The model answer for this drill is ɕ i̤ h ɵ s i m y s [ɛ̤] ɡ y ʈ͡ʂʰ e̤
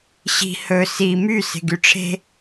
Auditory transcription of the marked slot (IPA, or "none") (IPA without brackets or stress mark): e̤